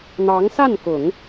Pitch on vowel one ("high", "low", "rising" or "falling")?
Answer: rising